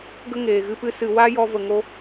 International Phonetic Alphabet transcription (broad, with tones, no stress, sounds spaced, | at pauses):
ɡ ə˦ ŋ eː˨ ɣ ɨ˧ p ɨ˧ s ɨ˨ w a˦ j ɔ˧ v ə˨ ŋ o˧